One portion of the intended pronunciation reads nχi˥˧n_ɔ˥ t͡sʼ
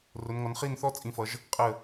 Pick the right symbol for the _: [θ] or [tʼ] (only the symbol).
θ